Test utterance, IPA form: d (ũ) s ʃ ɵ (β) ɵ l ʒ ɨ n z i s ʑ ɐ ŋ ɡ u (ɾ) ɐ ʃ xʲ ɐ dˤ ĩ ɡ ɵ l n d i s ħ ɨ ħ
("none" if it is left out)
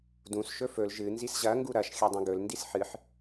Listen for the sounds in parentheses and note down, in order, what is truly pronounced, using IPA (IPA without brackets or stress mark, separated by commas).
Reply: ũ, f, ɾ